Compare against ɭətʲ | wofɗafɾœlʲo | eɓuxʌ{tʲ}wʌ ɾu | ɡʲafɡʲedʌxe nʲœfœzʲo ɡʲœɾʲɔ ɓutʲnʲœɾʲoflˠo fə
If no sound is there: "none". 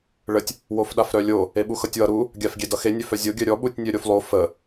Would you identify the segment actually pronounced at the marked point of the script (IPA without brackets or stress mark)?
tʲ